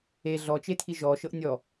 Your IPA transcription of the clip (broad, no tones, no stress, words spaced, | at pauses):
e ɮɔt͡ʃetʰi ʒɔʃɤʔ nʲɔ